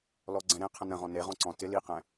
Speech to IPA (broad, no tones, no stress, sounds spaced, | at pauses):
l ɔ ɡ͡ǀ ɛ̃ ɾ ẽ qʰ ə̃ n ə̃ ʁ ɔ̃ n e ʁ ɔ̃ ǀ ɔ̃ t ɪ l i q ɛ̃